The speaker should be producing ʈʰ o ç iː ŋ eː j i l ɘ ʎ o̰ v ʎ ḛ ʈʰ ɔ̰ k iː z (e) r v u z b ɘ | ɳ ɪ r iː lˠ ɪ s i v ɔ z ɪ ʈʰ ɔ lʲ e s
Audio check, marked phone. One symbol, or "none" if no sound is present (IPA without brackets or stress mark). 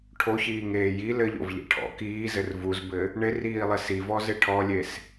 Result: ɘ